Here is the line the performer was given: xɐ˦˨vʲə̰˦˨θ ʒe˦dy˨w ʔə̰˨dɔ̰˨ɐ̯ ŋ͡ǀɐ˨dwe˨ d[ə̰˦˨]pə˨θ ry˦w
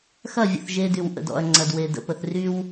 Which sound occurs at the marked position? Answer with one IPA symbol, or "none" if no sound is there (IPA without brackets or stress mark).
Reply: ə̰˨